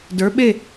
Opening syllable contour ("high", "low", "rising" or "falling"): rising